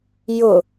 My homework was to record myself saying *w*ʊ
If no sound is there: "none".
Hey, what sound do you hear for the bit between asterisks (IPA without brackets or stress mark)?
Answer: j